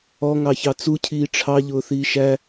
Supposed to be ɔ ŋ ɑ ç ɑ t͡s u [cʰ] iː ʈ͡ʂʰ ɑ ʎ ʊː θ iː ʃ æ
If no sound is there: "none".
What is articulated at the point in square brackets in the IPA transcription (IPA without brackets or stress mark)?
cʰ